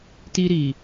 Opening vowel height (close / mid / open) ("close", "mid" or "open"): close